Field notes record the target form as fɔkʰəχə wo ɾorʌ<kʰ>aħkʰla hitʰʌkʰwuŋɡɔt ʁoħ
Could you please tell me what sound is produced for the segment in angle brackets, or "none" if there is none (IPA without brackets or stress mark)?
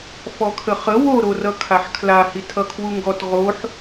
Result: kʰ